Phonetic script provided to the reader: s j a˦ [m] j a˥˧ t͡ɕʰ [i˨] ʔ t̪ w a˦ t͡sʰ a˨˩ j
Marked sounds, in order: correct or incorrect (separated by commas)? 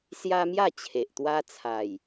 correct, incorrect